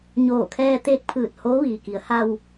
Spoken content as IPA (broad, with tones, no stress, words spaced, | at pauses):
ɲoː˧˩kʰɛː˧t̪eː˧k̚pʰɯː˧˩t̚ hoː˧˥ʋiː˩ki˩˧ə̯ ha˧w